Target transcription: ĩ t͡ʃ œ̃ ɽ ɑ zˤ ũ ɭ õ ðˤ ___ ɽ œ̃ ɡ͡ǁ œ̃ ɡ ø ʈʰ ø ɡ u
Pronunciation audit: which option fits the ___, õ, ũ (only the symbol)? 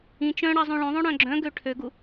õ